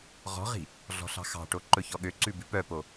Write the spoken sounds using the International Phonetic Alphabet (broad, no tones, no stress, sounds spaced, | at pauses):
ʁ ɔ̤ ʁ i̤ | ɮ ɔ̤ ɬ ɑ̤ x ɑ̤ ʈ o ǃ ɵ ç ɔ ɠ ø ǀ ʉ b ʉ p œ p o